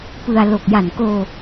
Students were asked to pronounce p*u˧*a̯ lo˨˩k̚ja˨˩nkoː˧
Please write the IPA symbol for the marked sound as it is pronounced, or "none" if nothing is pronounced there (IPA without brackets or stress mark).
ɯ˧